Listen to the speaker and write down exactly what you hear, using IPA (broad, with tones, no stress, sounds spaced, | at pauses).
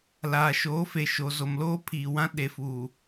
l aː˨ ʃ oː˨˦ f e˨ ʃ o˨ z o˨ m l oː˦ pʰ iː˨ w ã˦ ɗ e˨ f uː˨